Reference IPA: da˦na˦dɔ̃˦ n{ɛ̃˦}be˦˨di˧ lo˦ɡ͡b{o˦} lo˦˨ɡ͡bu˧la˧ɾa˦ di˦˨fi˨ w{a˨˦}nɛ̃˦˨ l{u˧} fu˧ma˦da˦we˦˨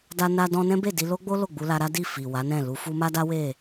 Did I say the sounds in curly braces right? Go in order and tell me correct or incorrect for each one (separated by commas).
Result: correct, correct, correct, correct